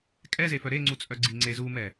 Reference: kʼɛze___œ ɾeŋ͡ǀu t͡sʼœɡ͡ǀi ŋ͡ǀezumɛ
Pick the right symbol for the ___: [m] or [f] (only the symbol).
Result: f